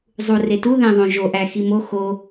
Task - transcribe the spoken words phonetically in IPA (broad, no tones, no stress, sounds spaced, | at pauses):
zˤ u r e t u ð ẽ ðˤ õ ʒ o ʔ æ x i m o x o